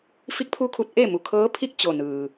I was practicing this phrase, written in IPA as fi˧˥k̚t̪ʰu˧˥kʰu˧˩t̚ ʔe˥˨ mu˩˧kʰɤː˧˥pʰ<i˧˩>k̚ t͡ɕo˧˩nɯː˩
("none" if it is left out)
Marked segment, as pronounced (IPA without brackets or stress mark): i˥˨